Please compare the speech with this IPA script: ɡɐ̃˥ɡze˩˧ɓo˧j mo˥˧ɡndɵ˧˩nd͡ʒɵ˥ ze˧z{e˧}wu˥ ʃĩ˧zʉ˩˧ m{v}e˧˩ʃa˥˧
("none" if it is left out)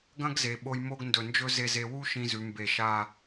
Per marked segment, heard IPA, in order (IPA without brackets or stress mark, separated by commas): e˧, b